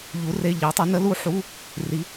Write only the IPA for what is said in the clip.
ʎu˧˥re˧˥˧ʎi˧˥tˤə˧˥ nə˧˥lu˧˥ ħu˧˥˧ | ri˧˥

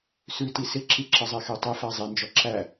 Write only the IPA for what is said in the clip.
sʉti sɪǁiǁəzˤe xetˤɪ fæzˤend͡ʒɔ ǁæ

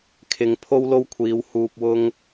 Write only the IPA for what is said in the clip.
kʰɪ˨ŋpʰo˥wlo˥wkʷʰiː˨˧w huː˧p̚wʊ˥ŋ

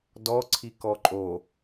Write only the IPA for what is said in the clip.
dɔǀʰi kɔǃʼo

